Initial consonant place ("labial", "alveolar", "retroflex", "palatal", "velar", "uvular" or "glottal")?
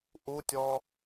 glottal